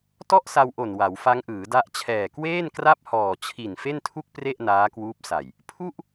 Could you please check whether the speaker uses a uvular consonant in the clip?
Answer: no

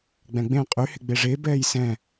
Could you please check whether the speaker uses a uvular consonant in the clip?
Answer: yes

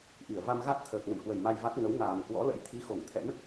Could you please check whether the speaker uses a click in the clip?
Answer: no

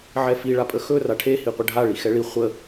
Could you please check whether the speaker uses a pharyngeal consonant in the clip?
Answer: yes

